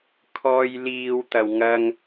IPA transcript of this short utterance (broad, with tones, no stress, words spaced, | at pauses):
kʰɔː˧jliː˧w t̪ɐ˧wŋɐ˥ŋ